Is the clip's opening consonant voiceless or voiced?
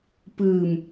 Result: voiceless